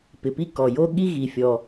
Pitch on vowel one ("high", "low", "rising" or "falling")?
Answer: low